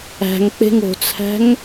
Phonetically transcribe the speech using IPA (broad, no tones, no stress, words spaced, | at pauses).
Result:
æ̤ŋk͡pe̤ŋ o̤t͡sʰæ̤ŋ